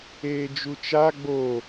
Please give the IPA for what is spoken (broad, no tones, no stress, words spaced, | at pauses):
eːd͡ʒut͡ʃa ɡ͡bo